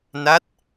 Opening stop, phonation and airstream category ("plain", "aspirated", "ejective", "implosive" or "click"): plain